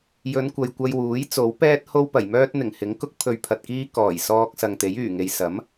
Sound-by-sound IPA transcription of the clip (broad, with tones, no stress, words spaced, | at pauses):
jɵ˨˧nkʷɐ˨jkʷɐ˧jwuː˨˥j t͡so˨˥wpɛː˥t̚ho˥w pɐ˨˩jmœː˥t̚ n̪ɪ˨˩ŋhɪ˨˥ŋkʊ˥k̚ pʰɵ˧ɥpʰɐ˨t̚kiː˥ kɔː˨˩jsɔː˧k̚ sɐ˨ŋt̪e˨˥j yː˨˩ŋe˨j sɐ˨˥m